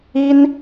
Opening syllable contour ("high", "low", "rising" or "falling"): high